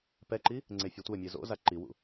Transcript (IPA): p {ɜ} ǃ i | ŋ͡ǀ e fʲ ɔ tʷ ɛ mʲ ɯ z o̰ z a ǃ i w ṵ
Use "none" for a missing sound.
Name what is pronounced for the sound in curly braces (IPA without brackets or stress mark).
ɛ